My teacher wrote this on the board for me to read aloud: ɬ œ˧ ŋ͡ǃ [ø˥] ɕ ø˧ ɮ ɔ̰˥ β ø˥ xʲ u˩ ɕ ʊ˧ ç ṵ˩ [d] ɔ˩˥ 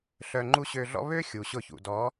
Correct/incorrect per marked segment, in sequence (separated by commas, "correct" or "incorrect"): incorrect, correct